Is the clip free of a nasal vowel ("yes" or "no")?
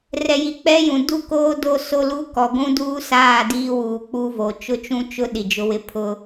no